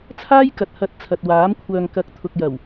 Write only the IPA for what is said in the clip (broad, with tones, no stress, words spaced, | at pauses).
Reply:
t͡sʰaː˥jkɐ˨t̚ hɐ˨˥t̚ t͡sʰɐ˨t̚waː˨˥m kʷʰœː˨ŋkɐ˨˥k̚ t̪ʰʊ˨k̚jɐ˨˩w